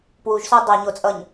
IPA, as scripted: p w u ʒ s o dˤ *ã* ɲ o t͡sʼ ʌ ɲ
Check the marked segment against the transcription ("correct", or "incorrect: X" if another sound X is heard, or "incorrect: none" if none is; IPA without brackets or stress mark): incorrect: a